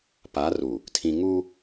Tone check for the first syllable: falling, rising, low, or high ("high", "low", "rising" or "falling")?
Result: rising